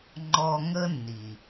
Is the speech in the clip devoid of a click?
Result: no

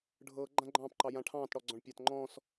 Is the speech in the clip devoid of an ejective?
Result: yes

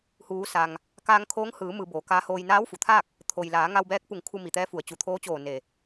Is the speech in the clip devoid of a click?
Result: yes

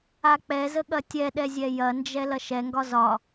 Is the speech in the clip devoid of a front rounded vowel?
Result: yes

